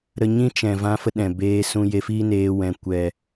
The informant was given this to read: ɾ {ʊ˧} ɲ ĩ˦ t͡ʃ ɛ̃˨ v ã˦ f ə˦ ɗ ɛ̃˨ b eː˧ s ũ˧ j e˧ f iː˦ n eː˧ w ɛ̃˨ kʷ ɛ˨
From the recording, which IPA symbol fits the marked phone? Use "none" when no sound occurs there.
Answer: ə˧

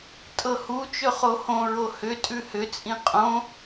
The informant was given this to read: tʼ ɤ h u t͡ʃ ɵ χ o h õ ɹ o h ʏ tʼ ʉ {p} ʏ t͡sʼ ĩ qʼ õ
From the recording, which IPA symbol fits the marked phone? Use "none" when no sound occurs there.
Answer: h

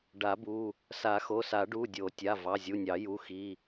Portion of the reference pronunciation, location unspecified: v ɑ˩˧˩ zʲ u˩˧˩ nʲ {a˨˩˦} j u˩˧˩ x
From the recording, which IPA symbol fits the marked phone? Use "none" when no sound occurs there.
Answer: ɑ˨˩˦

